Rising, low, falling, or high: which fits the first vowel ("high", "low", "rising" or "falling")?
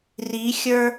rising